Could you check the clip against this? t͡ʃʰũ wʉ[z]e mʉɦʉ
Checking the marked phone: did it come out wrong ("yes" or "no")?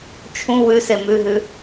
yes